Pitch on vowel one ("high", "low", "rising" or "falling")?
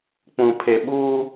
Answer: low